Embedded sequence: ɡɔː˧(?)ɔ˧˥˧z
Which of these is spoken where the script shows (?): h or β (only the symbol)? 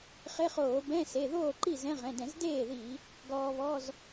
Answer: β